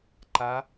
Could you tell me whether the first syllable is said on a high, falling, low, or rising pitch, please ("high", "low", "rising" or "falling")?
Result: rising